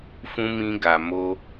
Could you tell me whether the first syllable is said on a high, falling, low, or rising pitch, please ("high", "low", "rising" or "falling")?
high